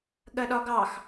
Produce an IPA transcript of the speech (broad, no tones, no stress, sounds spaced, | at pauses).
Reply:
ɠ ɜ ɗ ɒ ɡ ɑ x